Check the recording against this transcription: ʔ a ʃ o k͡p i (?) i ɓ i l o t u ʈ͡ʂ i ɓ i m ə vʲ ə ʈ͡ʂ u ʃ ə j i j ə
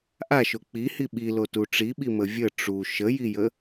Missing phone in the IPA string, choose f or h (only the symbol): h